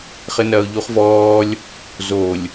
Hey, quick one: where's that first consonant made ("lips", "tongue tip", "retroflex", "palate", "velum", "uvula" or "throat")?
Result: uvula